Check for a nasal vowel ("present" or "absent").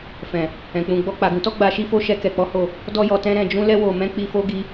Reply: present